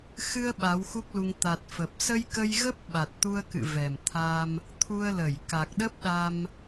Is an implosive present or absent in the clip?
present